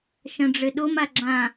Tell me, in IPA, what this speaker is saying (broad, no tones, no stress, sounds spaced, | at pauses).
ʃ ɐ̃ ɖ͡ʐ ɘ ɗ o m a ɡ͡ǁ ã